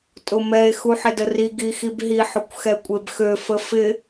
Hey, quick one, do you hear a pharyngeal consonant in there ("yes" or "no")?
yes